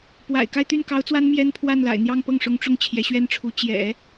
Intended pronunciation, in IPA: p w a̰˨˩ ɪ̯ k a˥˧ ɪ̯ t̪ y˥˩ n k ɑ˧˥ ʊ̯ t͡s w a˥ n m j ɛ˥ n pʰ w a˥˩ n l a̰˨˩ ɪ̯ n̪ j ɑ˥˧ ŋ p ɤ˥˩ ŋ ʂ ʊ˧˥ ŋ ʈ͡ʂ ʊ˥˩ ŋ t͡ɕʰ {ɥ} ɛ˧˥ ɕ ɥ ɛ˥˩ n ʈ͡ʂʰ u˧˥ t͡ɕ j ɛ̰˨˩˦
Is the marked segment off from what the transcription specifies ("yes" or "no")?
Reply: yes